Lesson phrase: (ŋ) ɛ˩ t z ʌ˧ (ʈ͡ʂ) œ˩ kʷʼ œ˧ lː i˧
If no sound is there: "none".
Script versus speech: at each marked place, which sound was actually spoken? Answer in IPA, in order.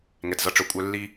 ŋ, ʈ͡ʂ

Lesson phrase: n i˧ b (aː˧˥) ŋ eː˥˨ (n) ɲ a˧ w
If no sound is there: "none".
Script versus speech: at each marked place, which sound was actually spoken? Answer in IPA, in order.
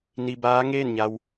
aː˧˥, n

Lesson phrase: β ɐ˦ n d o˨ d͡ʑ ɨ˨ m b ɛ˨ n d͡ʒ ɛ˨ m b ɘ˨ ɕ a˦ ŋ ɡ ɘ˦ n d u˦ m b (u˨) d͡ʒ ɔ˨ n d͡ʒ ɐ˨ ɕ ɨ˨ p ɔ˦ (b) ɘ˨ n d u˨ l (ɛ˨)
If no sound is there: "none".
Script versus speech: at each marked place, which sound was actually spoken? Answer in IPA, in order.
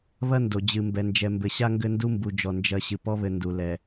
u˨, β, ɛ˨

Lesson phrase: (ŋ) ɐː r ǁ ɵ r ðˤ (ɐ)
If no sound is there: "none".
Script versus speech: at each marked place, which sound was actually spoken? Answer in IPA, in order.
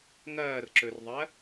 ŋ, ɐ

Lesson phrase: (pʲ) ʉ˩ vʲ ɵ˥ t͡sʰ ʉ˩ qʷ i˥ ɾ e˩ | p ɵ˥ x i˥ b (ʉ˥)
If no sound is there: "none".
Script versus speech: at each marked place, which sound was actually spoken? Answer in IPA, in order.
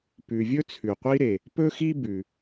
p, ʉ˩

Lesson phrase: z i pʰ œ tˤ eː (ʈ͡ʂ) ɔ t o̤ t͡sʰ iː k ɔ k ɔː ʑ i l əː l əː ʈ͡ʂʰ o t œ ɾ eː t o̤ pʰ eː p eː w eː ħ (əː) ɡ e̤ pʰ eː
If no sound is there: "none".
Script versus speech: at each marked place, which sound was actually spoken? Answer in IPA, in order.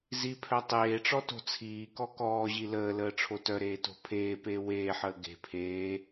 ʈ͡ʂ, əː

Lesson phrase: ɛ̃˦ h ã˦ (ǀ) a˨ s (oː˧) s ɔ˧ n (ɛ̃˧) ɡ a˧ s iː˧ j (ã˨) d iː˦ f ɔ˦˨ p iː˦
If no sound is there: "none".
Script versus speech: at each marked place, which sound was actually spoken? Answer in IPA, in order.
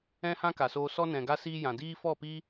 k, oː˧, ɛ̃˨, ã˨

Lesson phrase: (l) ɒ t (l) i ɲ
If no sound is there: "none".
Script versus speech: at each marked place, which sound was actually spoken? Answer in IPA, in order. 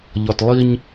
ʎ, lˠ

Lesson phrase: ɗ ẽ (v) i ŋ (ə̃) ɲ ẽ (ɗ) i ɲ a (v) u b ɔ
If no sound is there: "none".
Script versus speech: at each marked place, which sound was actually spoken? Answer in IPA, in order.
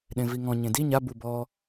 v, ɔ̃, d, b

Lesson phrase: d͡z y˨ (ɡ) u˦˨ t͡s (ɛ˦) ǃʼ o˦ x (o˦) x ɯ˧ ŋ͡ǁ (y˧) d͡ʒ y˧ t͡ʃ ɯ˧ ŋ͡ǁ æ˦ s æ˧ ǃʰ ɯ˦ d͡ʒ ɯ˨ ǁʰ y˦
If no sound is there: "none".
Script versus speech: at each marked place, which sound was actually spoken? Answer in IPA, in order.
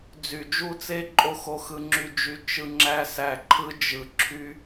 d͡ʒ, e˦, o˧, y˧

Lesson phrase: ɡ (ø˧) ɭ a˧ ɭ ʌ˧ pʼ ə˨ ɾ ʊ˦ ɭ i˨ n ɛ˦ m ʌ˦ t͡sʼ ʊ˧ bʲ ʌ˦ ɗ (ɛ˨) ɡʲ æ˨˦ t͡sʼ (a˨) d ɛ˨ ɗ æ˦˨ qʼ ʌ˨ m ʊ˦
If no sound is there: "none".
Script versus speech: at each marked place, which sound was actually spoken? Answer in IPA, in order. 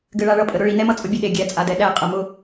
ɘ˧, e˨, a˨

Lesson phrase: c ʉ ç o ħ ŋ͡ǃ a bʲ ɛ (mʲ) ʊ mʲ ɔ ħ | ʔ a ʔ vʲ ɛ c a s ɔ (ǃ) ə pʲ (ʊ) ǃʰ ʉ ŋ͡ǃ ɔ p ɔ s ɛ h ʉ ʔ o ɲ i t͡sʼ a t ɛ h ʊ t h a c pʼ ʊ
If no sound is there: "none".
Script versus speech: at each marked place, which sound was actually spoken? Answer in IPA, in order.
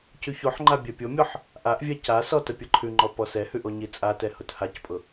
pʲ, t, ə

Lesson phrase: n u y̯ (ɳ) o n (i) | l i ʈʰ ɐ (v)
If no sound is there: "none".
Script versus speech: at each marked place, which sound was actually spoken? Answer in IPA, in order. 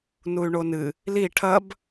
ɳ, ɨ, b

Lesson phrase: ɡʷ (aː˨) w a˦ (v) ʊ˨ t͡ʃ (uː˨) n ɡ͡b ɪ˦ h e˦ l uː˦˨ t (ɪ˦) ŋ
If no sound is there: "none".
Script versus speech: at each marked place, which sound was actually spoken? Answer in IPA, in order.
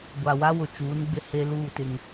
a˨, w, uː˨˦, ɪ˦

